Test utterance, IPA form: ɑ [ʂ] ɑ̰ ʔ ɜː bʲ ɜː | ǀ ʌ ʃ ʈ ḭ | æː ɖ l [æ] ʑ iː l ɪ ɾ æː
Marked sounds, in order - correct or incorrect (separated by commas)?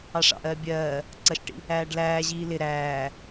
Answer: correct, incorrect